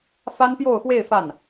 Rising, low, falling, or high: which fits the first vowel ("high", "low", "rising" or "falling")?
high